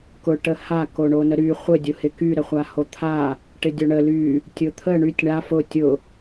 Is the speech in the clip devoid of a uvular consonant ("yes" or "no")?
no